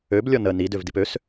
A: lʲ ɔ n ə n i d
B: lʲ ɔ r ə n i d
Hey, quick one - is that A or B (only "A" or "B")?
A